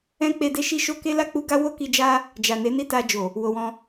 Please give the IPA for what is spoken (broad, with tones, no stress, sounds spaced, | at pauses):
ɛ̃˦ k͡p e˧ d e˦ ʃ i˦ ʃ o˦ k e˦ l a˦˨ k͡p u˧ ɡ a˦ w o˦ k i˧ d͡ʒ a˦ | d͡ʒ a˨ n e˨˦ n i˦ t a˧ d͡ʒ o˨ | w o˧ w ɔ̃˦